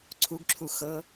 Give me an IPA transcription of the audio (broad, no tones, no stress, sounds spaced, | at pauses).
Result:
ǀʰ u ɡ ǁʰ u x ɤ